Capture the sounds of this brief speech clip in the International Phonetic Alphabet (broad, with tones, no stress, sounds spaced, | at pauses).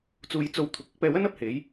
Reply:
t͡s uː˧ j t͡s o˧ w t̪ʰ ʊ˨˥ k̚ ʊ˨˥ k̚ p ɛː˧ w ɐ˥ n ɐ˥ p̚ h e˨˥ j